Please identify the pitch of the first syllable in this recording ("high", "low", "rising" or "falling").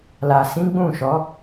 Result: low